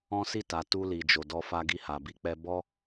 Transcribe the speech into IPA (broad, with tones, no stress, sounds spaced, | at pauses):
ɔ̃˦ s i˦˨ t a˨ t u˧ l i˨ d͡ʒ o˨ d ɔ˧ f a˧ ɡ i˧ h a˨ b i˧ k͡p ɛ˧ b ɔ˦